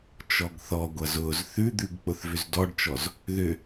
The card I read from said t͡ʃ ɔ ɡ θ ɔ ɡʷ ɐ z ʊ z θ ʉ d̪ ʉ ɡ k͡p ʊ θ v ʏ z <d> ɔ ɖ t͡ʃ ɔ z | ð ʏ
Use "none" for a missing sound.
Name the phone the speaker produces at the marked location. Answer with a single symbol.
d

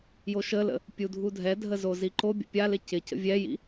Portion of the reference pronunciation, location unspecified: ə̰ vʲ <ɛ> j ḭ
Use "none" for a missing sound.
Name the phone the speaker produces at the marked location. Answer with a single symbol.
ɛ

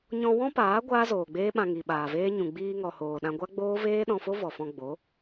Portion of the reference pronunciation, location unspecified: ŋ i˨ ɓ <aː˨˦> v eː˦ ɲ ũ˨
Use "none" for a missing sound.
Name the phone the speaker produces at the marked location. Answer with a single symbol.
aː˨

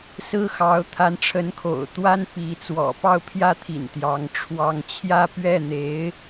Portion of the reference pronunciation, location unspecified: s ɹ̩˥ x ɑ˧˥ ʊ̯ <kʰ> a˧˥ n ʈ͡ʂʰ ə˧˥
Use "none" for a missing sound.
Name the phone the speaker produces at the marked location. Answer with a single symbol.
t̪ʰ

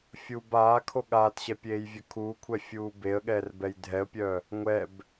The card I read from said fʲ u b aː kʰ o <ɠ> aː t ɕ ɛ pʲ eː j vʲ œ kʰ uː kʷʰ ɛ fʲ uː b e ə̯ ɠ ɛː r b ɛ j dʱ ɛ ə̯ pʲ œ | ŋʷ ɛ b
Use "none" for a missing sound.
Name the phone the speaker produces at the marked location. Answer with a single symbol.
ɠ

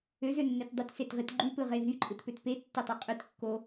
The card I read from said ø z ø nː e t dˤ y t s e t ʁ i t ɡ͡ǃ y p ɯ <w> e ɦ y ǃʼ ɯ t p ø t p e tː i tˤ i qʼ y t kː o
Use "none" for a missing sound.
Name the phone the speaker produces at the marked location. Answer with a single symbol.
ʁ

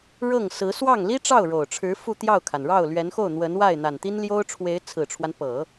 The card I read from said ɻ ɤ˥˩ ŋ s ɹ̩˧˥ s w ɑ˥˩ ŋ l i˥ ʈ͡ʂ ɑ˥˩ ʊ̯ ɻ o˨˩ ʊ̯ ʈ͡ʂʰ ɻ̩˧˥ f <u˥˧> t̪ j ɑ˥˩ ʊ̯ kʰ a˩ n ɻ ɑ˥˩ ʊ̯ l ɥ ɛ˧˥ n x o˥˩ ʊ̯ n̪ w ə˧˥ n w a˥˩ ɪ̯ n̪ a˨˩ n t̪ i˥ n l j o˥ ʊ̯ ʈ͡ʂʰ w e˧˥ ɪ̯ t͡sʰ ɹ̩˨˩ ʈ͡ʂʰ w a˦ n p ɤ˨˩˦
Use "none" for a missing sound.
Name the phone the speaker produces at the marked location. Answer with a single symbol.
u˥˧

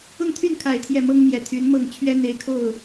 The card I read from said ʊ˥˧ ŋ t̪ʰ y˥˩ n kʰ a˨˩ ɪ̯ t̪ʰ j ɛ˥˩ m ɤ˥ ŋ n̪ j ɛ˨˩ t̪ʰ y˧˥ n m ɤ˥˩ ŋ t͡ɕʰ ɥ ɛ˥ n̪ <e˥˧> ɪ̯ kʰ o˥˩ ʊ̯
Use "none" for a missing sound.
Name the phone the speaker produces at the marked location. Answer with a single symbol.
e˧˥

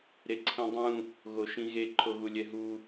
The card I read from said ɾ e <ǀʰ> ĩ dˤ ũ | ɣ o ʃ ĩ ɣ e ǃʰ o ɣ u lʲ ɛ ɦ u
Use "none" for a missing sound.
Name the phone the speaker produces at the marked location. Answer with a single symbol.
ǀʰ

